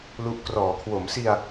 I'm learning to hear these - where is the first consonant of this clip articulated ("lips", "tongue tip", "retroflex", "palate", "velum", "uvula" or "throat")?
tongue tip